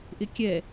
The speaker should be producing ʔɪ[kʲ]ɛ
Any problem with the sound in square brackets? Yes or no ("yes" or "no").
no